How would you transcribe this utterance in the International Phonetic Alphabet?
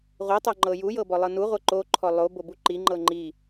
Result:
ʁʷ i tˤ o ŋ͡ǃ ɤ j u j ɤ b ɔ lˠ ɤ n u ʁʷ ɤ ǃ o ǃʰ ɔ lˠ o b o b u ǃ i ŋ͡ǃ ɤ ŋ͡ǃ i

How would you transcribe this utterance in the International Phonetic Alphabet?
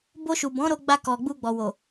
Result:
b o˧ ʃ u˨ b ɔ̃˨˦ ɾ o˧ ɡ͡b a˧ k ɔ˨ ɡ͡b u˧ ɡ͡b ɔ˨ w o˨

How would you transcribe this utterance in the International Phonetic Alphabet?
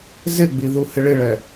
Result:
z ɪ ɡ͡b i ð u h ɪ ɭ ɪ ɭ ɛ

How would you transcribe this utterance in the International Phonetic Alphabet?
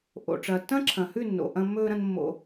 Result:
ʔ o̰˨ ʈ͡ʂ ɐː˨ tː ɐ̃˦ ǁʰ ɐ̃˨ h ʉ˦˨ nː o̰˨ ʔ ɐ̃˧ mː ɵː˧ ɾ ɐ̃˧ n mː o̰˧

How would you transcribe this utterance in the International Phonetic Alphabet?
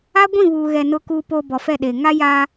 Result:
a˦ ɡʷ ĩ˦˨ β uː˨ ɣ ɛ˨ n ʊ˨ k uː˨ p o˨ b ɔ˨ f ɛ˦˨ ɗ e˨ ŋ a˦ j aː˦

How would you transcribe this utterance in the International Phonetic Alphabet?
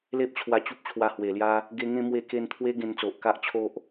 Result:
l e˦ p̚ t͡ɕʰ w a˧ t͡ɕ u˦ p̚ t͡ɕʰ w a˧ h w e˨˩ l j a˦ | ɡ e˧ ŋ ẽ˥˧ m w e˧ k e˧ n t̪ʰ w e˦ ɡ ẽ˧ n t͡s o˨ ʔ k a˦ ʔ t͡ɕʰ o˦ ʔ

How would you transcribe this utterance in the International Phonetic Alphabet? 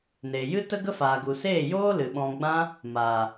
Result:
n eː˨ j ɨ˦ t ə˦ ɡ ə˦ f aː˨ ɡ u˨ s eː˦˨ j oː˦ l ɨ˨ ɓ ɔ̃˧ ɡ͡b ã˧ | m aː˨

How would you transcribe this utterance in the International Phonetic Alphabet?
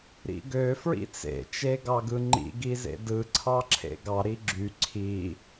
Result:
ɾ ḭ ɡ ø f ɹ ḭ t͡s ḛ t͡ʃ e ɡ ɑ ɡ ɯ ŋ͡ǃ ḭ ɡ i z ḛ d ɯ ǀʰ ɑ ǁʰ ḛ ɡ ɑ ɾ i ɡ͡ǁ y ǀʰ i

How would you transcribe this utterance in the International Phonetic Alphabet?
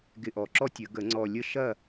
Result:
ɡ ɪ˧˩ ʔ ɔ˨˩˦ ǁ ɔ˦ tʲ ə˨˩˦ ɡ ə˨˩˦ ŋ͡ǀ ɔ˧˩ lʲ ə˥˨ ʃ ɐ˥˨

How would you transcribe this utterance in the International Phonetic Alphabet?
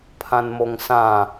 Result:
pʰ ã n m o ŋ s ã

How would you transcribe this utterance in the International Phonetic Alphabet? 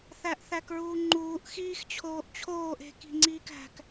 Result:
θ æ ʔ θ æ k ɹ uː ŋ͡ǃ uː ʔ x iː x t͡ɕʰ oː ʔ t͡ɕʰ oː ʔ e̤ k i̤ ŋ͡ǀ iː k æ̤ k

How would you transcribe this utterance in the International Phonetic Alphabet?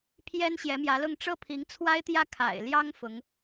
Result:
pʰ j ɛ˥ n ɕ j ɛ˧˥ m j ä˧˥ l ʊ˥˧ ŋ ʈ͡ʂ ɤ˥˩ pʰ i˧˥ ŋ t͡sʰ w a˥ ɪ̯ t̪ j ä˥˩ kʰ a̰˨˩ ɪ̯ l j ɑ˥ ŋ f ʊ˧˥ ŋ

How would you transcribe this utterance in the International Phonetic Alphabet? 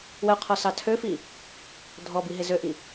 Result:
w ə u̯ qʰ ɔ s ɑ tʰ ø f i | dʱ ɔ b i ɦ e z ø ʔ i

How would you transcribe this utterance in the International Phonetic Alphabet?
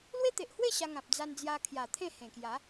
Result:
l w e˦ t̪ e˨ ʔ h w e˥˧ ɕ a˧ ŋ ã˨ p̚ d͡z a˧ n d͡z j a˧ kʰ j a˨˩ t̪ʰ ẽ˥˧ h ẽ˨˩ k j a˨˦

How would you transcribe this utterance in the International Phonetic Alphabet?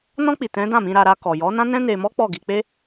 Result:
n ɔ̃˧ k͡p i˨ t ɛ̃˨˦ d ã˦˨ m ĩ˧ ɾ a˧ ɾ a˧ k ɔ˨ j ɔ˨˦ n ã˦ n ɛ̃˦ n e˧ m ɔ˦ k͡p ɔ˦˨ ɡ i˧ k͡p e˦

